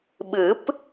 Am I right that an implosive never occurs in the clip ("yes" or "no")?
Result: no